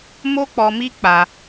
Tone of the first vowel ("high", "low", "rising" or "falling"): high